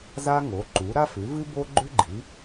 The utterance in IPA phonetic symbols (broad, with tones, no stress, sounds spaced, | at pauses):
z a˥ ŋ o˩˥ ǃ u˩˥ ɾ a˥ f ʉ˩˥ v ɨ˥ b o˥ ɡ͡ǃ ʉ˥ ɡ͡ǃ i˩˥